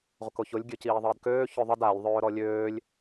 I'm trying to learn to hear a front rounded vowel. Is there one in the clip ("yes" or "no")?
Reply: yes